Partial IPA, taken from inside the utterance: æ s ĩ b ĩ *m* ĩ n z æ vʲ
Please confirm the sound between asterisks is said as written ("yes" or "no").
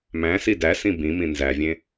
yes